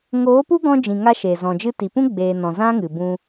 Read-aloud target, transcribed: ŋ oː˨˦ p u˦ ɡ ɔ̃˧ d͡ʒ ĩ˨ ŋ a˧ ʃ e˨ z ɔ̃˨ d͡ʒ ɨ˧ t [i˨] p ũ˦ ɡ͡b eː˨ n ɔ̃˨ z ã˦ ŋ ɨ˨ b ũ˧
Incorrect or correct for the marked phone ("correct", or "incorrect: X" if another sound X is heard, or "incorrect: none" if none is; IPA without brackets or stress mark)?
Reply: correct